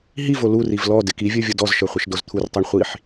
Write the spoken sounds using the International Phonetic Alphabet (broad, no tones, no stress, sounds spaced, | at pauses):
ɦ i v o l u r i v l ɔ d ɪ k i vʲ ə˞ vʲ o d ɔ z ʃ ə˞ χʷ ɪ ʃ d o z t̪ʰ u r tˤ ə˞ ɳ χʷ i ħ